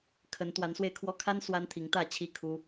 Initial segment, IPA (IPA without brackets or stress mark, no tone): kʰ